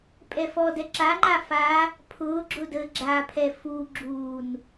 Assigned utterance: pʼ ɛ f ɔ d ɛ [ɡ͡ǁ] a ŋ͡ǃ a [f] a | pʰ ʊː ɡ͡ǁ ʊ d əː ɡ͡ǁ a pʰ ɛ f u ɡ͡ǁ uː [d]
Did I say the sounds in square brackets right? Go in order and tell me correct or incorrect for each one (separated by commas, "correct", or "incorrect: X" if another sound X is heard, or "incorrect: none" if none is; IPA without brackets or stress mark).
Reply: incorrect: ǁ, correct, incorrect: n